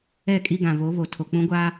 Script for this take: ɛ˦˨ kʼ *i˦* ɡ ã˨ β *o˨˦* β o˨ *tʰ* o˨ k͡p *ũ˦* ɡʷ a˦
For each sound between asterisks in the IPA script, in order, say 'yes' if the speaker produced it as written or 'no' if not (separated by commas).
yes, yes, yes, yes